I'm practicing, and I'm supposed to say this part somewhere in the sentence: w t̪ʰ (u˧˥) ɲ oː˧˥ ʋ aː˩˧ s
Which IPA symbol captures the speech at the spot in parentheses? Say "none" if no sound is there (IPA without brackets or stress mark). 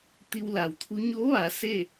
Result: u˧˥